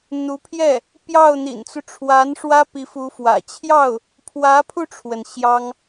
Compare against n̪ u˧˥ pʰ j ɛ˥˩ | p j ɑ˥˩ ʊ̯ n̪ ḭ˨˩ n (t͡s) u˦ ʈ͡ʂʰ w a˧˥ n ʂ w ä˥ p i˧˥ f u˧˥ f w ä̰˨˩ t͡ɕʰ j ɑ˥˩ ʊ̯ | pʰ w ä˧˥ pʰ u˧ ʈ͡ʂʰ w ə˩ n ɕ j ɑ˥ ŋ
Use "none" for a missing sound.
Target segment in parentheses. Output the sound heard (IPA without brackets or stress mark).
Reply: t͡s